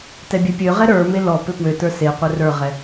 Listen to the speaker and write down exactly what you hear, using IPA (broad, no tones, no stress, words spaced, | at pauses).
tɛbʲɛpʲøʁɛ ɾə˞me lɔ pøpwøtə˞ seqʷɛ rə˞ʁɛ